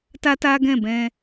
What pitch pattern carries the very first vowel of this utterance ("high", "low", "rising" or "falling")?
high